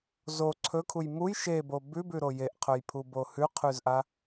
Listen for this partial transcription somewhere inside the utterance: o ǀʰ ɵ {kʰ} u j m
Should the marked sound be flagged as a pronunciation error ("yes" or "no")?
no